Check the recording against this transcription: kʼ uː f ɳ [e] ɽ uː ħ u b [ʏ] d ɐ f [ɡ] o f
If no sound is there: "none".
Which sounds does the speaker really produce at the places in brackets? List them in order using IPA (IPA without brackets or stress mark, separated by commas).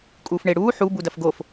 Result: e, u, ɡ